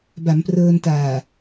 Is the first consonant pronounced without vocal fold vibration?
no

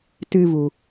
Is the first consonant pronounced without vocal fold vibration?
yes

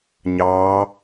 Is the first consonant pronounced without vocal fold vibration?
no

